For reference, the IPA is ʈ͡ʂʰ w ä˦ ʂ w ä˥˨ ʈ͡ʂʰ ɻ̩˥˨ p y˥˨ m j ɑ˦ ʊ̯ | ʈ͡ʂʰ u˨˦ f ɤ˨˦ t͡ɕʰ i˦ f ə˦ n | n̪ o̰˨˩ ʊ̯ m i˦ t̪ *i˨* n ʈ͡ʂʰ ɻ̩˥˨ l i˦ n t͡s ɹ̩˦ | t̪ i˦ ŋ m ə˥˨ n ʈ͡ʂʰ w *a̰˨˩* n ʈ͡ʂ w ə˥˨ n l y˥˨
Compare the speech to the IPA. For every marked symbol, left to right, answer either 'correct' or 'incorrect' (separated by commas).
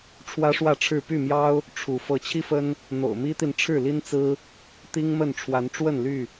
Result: correct, incorrect